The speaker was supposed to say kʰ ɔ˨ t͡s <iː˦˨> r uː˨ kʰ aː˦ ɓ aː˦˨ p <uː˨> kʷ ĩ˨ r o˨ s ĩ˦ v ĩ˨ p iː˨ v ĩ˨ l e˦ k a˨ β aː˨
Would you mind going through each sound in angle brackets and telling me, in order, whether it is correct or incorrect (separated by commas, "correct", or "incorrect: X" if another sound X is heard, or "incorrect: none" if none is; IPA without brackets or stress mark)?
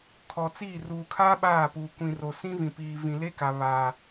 correct, correct